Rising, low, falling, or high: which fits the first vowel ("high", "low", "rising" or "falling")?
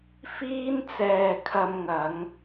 high